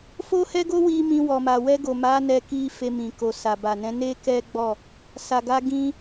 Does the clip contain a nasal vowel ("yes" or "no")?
yes